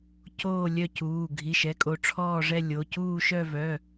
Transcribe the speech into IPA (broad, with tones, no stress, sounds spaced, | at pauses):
c oː˦˨ lʲ œ˦˨ c uː˩˧˩ ɡʱ i˩˧˩ ʃ ɛ˩˧˩ kʼ o˨˩˦ ʈ͡ʂʰ ɔː˦˨ ʐ ɛ˦˨ lʲ o˩˧˩ c uː˦˨ ʃ œ˦˨ v œ˩˧˩